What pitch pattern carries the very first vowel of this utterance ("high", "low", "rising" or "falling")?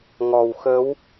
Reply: low